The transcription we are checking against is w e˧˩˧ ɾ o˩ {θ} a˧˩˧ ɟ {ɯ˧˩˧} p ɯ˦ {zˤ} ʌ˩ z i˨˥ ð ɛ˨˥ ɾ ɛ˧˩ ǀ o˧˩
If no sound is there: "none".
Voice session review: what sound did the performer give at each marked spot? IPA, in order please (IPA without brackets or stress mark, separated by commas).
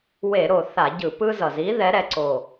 θ, ɯ˧˩˧, z